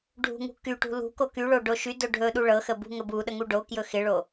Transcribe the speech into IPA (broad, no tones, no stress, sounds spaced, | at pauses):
ɖʱ ṳ ŋ ṳ k y ʈ ṳ l ṳ k o k y ɭ o ɖ o ʃ y d ɵ ɖʱ ɵ ɗ u ɭ ɤ x ə b ṳ ŋ ə b u ɗ ə ŋ u ɖ o k j ɵ x ɪ ɭ o